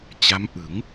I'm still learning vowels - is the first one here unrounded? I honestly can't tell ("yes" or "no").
yes